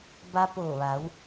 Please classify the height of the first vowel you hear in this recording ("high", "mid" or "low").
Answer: low